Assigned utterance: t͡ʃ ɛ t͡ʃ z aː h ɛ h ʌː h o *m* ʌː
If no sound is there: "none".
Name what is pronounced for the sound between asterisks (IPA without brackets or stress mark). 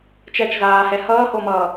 m